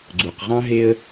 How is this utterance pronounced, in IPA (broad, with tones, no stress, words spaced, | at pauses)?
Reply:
ɡ͡ǀu˩qʁɑ̃˥ɦe˦ə̯